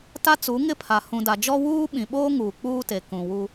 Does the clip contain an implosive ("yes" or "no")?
yes